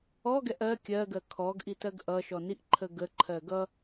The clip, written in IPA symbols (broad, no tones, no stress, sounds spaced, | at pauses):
ɔ ɡ ɛ ʔ ɜ kʲ ɜ ɡ ɜ kʰ ɔ ɡ ʔ i t ɜ ɡ ʔ ʌ ʃ ɔ n i ʔ ǃʰ ə ɡ ə ǃʰ ɜ ɡ ʌ